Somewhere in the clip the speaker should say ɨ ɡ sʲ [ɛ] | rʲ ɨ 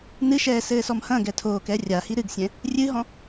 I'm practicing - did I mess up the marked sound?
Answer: yes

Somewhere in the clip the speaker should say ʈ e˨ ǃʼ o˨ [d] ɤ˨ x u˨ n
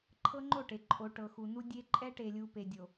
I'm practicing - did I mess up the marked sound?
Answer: yes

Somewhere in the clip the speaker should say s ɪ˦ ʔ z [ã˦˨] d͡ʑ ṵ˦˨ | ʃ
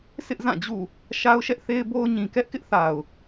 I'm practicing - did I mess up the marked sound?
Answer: no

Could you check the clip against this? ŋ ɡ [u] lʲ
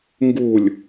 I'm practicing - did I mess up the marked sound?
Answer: no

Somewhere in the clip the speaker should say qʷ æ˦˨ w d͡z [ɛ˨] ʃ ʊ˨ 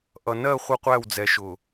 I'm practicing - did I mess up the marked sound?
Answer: no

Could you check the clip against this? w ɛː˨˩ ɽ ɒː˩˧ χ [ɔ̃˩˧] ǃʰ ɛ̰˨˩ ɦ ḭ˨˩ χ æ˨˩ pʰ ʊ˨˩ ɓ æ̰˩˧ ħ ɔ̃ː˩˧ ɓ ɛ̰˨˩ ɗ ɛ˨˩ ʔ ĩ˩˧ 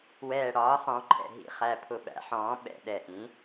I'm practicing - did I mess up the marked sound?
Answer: no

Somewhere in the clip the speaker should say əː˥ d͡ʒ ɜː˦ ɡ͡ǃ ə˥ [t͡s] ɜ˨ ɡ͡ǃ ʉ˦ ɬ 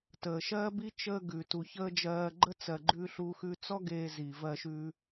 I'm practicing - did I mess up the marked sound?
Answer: no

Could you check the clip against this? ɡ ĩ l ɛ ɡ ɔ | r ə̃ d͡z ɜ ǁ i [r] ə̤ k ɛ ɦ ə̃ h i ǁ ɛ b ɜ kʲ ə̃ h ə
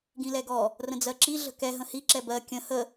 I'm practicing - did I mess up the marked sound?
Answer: yes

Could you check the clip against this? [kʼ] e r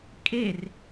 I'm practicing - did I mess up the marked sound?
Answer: no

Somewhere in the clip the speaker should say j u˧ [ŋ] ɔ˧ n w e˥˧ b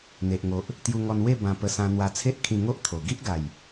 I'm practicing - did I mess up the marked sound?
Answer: no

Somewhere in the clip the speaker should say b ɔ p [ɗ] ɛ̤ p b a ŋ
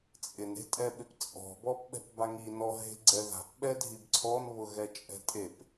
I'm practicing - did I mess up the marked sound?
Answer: yes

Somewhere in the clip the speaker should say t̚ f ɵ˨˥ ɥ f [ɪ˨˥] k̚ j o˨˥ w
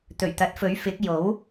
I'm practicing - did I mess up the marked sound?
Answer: no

